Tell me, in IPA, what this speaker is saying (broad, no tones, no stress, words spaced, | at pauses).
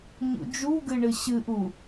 ɲṵd͡ʒuɡɨ ɳɨɕɨʔu